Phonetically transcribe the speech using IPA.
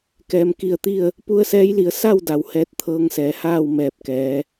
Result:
k ɛː˩ m k i˧˩ ə̯ t̪ i˥˨ ə̯ | p u˧ ə̯ s ɛː˧˥ j l i˩˧ ə̯ s a˥˨ w d a˩ w h ɛː˧˥ t̚ t̪ʰ ɤː˧˥ ŋ s ɛː˩˧ h aː˥˨ w m ɛː˧˩ p̚ k ɛː˩˧

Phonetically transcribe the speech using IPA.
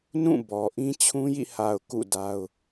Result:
n ũ˦˨ b ɔ˨ ʔ ĩ˦ t͡ɕʰ ũ˦ j ḭ˦˨ h a˨ ʊ̯ k ṵ˦˨ d a˦ ʊ̯

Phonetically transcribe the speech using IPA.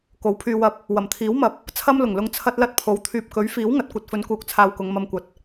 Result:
k o˨˥ w pʰ yː˧ w ɐ˧ p̚ | w ɐ˨˩ m t̪ʰ iː˨˥ w m ɐ˨ p̚ | t͡sʰ ɐ˥ m l ʊ˨˩ ŋ l ʊ˧ ŋ t͡sʰ ɐ˥ t̚ l ɐ˥ t̚ pʰ o˨˥ w t̪ʰ yː˨ p̚ k ɵ˨˥ ɥ f iː˨˥ w ŋ ɐ˨ t̚ kʷ ɐ˧ t̚ f ɵ˨˧ n k uː˨˥ k̚ t͡sʰ aː˧ w k ʊ˨˧ ŋ m ɐ˧ m kʷ ɐ˨ t̚

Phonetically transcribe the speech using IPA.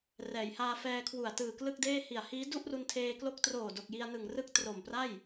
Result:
r ɛː˩˦ j h aː˧ f ɛː˧ kʰ w u˨˩ a̯ t ɯː˨˩ k l ɯ˥˩ k̚ d eː˥˩ h i˨˩ a̯ h iː˦˥ d u˥˩ ʔ r u˧ n tʰ eː˧ k l o˦˥ k̚ t r oː˨˩ d o˨˩ k̚ j i˧ a̯ n ɯ˨˩ ŋ r ɯ˦˥ k̚ t r o˨˩ m p r a˥˩ j

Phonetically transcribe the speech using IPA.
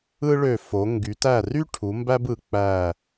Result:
ɯ˥ ɭ ø˦˨ f o˨˦ ŋ ɡ y˨˦ t æ˦˨ r y˥ ʈʰ u˨˦ m b æ˥ b ɯ˨˦ k͡p æ˦˨

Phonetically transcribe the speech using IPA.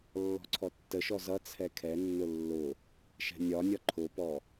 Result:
lː ɔ̤ ǀʰ ɔ tː ə ʃ ɔ z ʌ t͡sʰ ɛ kʰ ɛ nː ʊ lː ʊ | ʃ ɛ̤ nʲ ɒ nʲ ɒ ǃʰ ʊ p ɔ

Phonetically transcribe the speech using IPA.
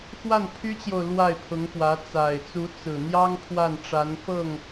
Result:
x w a˥˩ n pʰ y˥ t͡ɕ j o˨ ʊ̯ l w a˥˩ ɪ̯ pʰ ʊ˧˥ ŋ p w ä˧˥ t͡s a˨˩ ɪ̯ t͡s u˧˥ t͡s ɹ̩˨˩ n̪ j ɑ˥ ŋ pʰ w a˥˩ n ʈ͡ʂ a˧˥ n f ɤ˥˩ ŋ

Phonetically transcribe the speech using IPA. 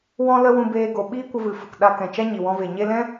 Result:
w ɔ̃˦ l ə˦ w ũ˦ b eː˦ ɡ o˧ ɓ iː˦ kʷ ə˧ v ɨ˨ f ə˨ k ɗ a˧ k ɛ̃˨ t͡ʃ a˦ ɲ i˨ w ɔ̃˧ v e˨ ɲ e˧ l ɛ̃˦

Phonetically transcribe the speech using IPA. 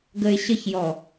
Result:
ɡ ə ɪ̯ ɕ ə ç j ɔ

